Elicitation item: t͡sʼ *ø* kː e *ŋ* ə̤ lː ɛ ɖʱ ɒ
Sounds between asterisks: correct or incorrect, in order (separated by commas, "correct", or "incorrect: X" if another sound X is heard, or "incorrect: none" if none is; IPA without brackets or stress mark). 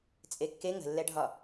incorrect: e, correct